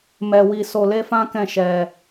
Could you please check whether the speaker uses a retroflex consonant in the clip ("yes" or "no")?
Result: no